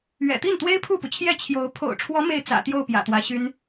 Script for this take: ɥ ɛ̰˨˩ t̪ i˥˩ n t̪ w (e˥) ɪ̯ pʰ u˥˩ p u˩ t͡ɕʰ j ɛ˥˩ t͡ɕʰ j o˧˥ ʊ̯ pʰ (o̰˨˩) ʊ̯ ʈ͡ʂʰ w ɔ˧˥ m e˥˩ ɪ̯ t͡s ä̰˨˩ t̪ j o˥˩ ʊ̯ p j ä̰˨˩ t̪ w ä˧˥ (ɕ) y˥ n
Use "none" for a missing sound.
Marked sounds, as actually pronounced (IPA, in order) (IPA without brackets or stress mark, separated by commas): e˥, o̰˨˩, ɕ